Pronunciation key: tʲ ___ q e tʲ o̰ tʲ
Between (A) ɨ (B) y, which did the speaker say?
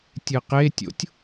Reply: A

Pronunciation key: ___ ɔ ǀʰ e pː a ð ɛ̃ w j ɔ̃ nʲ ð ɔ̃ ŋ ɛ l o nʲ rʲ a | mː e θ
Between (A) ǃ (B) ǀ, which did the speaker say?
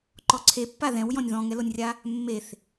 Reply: A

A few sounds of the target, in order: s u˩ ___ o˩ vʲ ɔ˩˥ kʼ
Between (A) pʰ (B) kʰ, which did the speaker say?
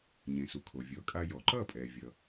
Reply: B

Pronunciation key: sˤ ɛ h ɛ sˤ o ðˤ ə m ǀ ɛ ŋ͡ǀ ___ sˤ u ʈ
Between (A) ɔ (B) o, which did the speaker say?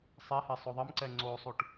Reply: B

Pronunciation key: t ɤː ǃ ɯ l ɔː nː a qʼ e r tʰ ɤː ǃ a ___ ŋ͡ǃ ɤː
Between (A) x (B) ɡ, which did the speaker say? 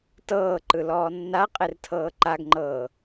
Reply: B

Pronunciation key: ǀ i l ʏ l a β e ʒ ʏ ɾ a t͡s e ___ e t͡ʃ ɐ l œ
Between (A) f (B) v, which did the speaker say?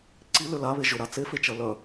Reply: A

